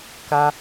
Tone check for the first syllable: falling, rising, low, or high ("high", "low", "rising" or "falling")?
high